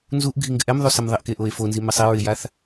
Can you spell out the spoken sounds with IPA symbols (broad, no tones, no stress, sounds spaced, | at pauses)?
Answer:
n z u ʔ ɡʱ i ŋ ɡ ɪ ʔ ɛ m ðˤ u s ɛ m ðˤ e ʔ k e ʔ o e̯ f o n z i m ɪ sˤ e ɹ ɪ j a θ